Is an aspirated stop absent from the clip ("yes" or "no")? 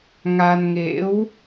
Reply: yes